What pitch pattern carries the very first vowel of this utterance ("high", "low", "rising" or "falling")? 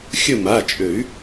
falling